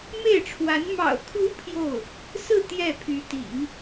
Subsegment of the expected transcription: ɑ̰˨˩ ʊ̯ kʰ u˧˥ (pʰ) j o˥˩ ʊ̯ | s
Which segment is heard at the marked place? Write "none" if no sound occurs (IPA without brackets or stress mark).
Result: pʰ